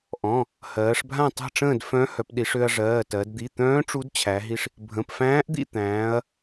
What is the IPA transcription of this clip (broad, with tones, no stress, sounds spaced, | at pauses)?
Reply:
ʔ ɔ̃˩˧˩ | h ɜː˩˧ ʂ bʱ ã˥˨ tˤ a̤˥˨ ʈ͡ʂ ə̃ː˥˨ d f œ̃˧˥ h œ˩˧ p ɗ i˩˧ ʂ ø˧ ɐ̯ ʐ ɜː˩˧˩ t ɜ˩˧ d d̪ i˩˧˩ t̪ œ̃ː˧˥ ʈ͡ʂ u˧˥ d t͡ɕʰ æ˩˧ ɦ i˧ ʂ | bʱ ə̃˩˧˩ p f æ̃ː˧˥ ʔ d̪ ḭ˥˨ t̪ æ̃ː˩˧ ɐ̯